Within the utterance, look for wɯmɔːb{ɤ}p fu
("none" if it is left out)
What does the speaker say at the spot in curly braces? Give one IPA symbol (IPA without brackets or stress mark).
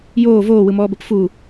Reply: ɤ